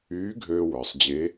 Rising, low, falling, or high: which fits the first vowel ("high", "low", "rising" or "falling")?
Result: rising